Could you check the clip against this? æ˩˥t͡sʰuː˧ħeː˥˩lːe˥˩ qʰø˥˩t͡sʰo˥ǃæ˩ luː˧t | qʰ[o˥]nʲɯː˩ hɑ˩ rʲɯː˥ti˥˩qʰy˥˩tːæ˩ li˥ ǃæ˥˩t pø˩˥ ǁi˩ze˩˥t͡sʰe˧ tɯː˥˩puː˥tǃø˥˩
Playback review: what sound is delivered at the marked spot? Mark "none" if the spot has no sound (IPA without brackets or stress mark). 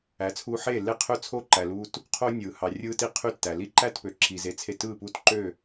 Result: o˥